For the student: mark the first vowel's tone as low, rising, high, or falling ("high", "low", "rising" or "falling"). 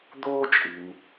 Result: high